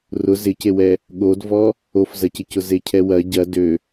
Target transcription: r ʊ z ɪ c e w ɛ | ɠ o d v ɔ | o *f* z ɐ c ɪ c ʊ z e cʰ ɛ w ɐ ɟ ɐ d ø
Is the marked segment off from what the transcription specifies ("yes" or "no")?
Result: no